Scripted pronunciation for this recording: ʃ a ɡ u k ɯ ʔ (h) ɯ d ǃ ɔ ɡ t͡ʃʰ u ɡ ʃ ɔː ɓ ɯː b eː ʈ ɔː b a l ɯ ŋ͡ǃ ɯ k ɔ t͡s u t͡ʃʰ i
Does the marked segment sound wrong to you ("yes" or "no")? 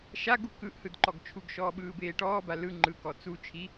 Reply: no